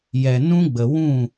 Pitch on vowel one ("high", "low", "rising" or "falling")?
low